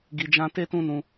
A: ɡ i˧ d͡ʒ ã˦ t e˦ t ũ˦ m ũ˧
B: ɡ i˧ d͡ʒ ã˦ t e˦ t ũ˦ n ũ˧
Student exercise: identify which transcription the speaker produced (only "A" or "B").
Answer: B